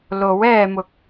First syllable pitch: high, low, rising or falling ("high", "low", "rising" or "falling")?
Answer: rising